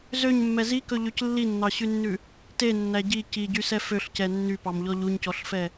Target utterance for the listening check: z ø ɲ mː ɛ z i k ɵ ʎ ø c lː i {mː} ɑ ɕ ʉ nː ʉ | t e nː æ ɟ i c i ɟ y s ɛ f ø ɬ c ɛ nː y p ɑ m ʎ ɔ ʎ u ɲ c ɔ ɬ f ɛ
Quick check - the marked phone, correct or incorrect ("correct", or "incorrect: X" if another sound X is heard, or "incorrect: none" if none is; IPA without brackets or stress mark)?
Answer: incorrect: nː